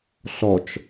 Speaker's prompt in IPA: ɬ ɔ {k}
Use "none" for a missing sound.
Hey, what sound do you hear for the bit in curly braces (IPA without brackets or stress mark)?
t͡ʃ